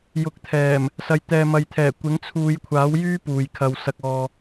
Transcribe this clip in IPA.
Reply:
j ʊ˨ k̚ t̪ʰ ɛː˨˩ m | s ɐ˨ j t̪ ɛː˨ m ɐ˨ j t̪ʰ ɛː˨˩ kʷ ɪ˨˥ ŋ t͡sʰ uː˨˧ j kʷʰ aː˨˥ w j yː˥ p uː˨ j kʰ ɐ˧ w s ɐ˧ k̚ ɔː˧

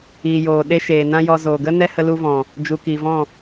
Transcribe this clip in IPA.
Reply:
iː˨ j oː˨ ɗ e˦ ʃ eː˨ n ã˦ j ɔ˧ z oː˨ ɡ ə˦ n ɛ˦ h ə˧ l u˧ v ɔ̃˨ | d͡ʒ u˨ k iː˨ v ɔ̃˦˨

